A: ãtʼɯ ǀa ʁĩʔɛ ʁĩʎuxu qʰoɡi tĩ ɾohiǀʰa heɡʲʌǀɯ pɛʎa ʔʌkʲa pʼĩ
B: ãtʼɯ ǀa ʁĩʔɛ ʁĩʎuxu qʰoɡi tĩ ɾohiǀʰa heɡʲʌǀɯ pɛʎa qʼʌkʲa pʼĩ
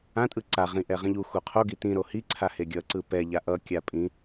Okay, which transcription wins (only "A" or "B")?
A